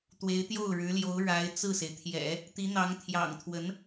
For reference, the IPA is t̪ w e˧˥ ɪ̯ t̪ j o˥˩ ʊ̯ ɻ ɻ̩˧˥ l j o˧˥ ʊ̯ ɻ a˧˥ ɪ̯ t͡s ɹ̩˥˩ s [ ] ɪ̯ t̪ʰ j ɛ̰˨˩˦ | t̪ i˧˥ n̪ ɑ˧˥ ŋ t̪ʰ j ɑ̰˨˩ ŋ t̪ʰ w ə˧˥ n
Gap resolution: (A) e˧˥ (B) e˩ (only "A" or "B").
B